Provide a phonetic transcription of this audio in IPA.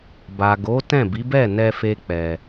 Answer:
b a˨ ɡ o˨˦ t ɛ̃˦˨ b i˨˦ b ɛ˦˨ n ɛ˧ f e˦ k͡p ɛ˧

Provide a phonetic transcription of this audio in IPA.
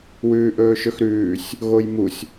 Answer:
w ʉː ʔ ɵː ʃ ɵ x ɾ ʉː sʲ | ɣ o j m u sʲ

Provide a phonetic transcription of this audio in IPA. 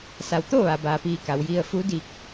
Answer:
s a˩˧ w t̪ o˥˨ ʋ a˩ b aː˩ p iː˧˩ k a˩˧ w j i˧ ə̯ f u˧˥ d iː˧˩ k̚

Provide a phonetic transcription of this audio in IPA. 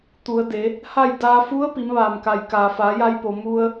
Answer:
t̪ u˩˧ ə̯ d e˩˧ | h a˥˨ j d aː˧ f u˧˥ ə̯ p i˩˧ m ʋ aː˩ m k a˩ j k aː˩ f aː˩˧ j a˧ j p o˩ m u˧ ə̯

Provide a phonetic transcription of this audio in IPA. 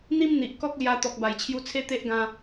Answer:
n̪ i˦ m n̪ i˨ ʔ k ɔ˦ k̚ l j a˧ t̪ ɔ˨ k̚ b a˨˩ j t͡ɕʰ j u˧ t͡sʰ e˦ t̪ e˦ ʔ ɡ ã˧

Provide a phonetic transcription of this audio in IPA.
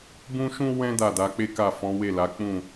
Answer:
b ũ˦ ʃ ũ˦ w ɛ̃˦ d a˦˨ d a˨˦ k͡p e˦ k a˦˨ f ɔ̃˨˦ w e˦˨ l a˨˦ k͡p ũ˦˨

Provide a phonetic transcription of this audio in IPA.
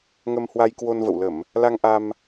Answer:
ŋ ə˧ m h w a˧ j k w o˧ n v ə̰˧˨ w l ə˧˩˨ m | l a˧ ŋ ʔ a˧ m

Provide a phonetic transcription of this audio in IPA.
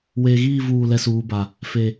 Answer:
w eː˨ ɣ iː˦˨ v uː˦˨ l ɛ˦ s uː˨˦ b a˨ | f e˨

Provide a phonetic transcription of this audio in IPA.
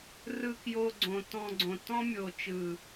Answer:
r ɯ˧ k j o˧ ɡ͡ǀ õ˨ t ɔ̃˧ ɡ͡ǀ õ˨ t ɔ̃˦ mʲ o˨ t͡ʃ ɯ˨

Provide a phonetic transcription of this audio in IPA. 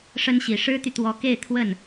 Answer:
ʂ ə˥ n ɕ i˨˩ ʂ ɻ̩˥ t̪ y˨ t̪ w ɔ˧˥ k e˥˧ ɪ̯ t̪ʰ w ə˥˩ n

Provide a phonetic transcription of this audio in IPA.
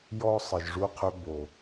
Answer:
j ɔ˦ sˤ ə˨ ʒ ʐ u˧ qʰ ø˧ b o˨

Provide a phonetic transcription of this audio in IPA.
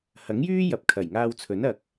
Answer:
h ɐ˨˥ ŋ j yː˥ j ɐ˨˥ p̚ kʰ ɐ˨˩ j ŋ aː˧ w t͡sʰ ɵ˨˥ n ɐ˨ k̚

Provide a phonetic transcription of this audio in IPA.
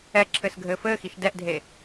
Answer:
ɛ ǁʰ ɘ s ɡʱ ɘː f ɘː x i ʃ d ɛ ʔ dʱ e

